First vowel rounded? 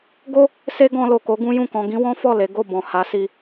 yes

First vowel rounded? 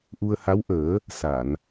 yes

